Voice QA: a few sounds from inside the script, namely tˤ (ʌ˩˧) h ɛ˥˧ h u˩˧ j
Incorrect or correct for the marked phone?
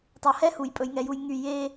correct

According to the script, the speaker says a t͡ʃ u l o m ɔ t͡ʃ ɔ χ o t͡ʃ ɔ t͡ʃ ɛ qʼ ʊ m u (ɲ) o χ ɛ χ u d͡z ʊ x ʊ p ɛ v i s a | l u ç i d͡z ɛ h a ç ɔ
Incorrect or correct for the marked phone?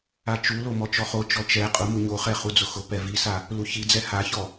correct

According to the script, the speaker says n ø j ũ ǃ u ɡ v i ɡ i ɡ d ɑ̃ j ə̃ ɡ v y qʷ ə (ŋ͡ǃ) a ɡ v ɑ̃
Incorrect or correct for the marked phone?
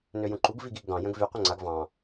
incorrect: ŋ͡ǀ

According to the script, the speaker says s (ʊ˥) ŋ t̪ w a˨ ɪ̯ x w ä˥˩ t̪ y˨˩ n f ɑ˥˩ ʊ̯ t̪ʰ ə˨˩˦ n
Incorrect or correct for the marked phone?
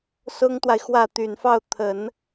correct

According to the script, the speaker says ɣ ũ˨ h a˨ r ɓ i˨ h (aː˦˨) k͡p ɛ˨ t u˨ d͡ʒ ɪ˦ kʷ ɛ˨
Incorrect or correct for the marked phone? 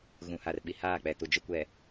correct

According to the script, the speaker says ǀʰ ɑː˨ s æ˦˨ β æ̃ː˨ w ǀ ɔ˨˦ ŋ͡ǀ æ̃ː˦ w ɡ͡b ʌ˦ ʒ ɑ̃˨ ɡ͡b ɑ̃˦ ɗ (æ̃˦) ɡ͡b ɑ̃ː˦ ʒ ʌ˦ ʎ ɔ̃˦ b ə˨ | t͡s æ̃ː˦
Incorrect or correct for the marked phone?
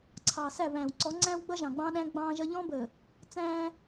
correct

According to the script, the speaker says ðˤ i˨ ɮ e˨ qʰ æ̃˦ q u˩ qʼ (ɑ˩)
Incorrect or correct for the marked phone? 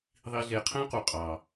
correct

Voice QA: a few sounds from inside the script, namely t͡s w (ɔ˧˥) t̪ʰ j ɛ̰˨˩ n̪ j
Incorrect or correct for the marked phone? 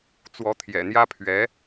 correct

